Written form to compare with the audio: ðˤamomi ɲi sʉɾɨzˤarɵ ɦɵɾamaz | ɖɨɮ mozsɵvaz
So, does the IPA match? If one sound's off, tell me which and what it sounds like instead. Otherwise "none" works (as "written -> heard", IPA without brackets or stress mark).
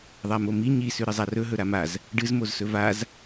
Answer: ɮ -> z